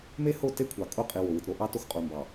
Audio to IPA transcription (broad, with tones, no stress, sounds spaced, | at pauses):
m e˦ h o˦˨ t e˦ kʷʰ ɑ˨ kʼ o˦˨ qʼ i˨ w o˨ w ɯ˨ t ɾ o˦ ʔ ɑ˦ t o˦ x qʼ u˨ m b ɑ˨